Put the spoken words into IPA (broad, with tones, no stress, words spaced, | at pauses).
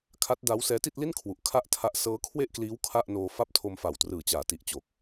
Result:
kʰa˦˥t̚da˦˥w sɛː˦˥ti˥˩t̚li˥˩nkʰwu˨˩ʔ kʰa˥˩ʔtʰa˦˥ʔ sɤː˦˥kʰwe˥˩ʔkliː˦˥w kʰa˥˩ʔnoː˧fa˥˩p̚ tʰo˧mfa˨˩wtrɯː˨˩ t͡ɕaː˩˦ti˨˩ʔt͡ɕoː˨˩k̚